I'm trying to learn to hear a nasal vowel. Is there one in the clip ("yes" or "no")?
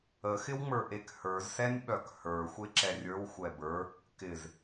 no